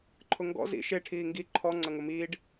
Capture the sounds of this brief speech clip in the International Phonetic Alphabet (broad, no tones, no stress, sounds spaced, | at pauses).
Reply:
ǃʰ ʊ ŋ ɡ ɔ̰ z ḭ ʃ e ʈʰ iː ŋ ɡ i ǃʰ ɔ ŋ͡ǀ ɐ ŋ ʊ m iː ɖ